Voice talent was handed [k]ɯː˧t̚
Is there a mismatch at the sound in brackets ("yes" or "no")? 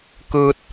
no